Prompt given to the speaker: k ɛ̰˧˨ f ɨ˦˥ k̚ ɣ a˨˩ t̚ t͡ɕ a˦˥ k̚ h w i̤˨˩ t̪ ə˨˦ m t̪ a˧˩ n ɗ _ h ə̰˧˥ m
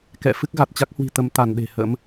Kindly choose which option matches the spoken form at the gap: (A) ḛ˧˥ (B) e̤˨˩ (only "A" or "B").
B